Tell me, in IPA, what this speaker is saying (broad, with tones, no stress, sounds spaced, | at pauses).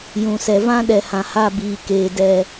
j ũ˨ s ɛ˨ v ã˦ ɗ ɛ˨ h ã˨ h a˦˨ b iː˨ k eː˨ d ɛ˨